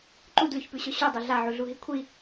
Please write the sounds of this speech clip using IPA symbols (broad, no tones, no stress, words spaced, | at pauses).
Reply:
ǃudlʉçpʉɕɵ ɕudˤɵ ɮaʕuɮuɦi kʷʰi